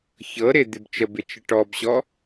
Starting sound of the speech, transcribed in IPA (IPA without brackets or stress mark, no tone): ç